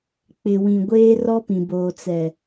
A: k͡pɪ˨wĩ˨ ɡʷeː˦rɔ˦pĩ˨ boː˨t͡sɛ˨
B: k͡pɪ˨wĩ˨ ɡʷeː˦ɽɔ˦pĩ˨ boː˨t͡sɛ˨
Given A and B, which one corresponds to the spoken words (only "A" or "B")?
A